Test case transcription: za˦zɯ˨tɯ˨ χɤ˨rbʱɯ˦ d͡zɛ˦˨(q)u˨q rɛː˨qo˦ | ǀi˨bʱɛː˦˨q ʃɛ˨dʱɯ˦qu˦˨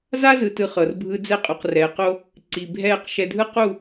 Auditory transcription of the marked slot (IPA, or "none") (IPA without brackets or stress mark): qʼ